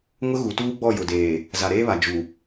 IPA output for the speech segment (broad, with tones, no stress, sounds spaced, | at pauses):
ŋ ʊ˦ ɣ u˨ t uː˦ ɡ͡b ɔ˦˨ j ʊ˨ d eː˨ | z a˨ ɾ eː˦ β a˨ d͡ʒ u˨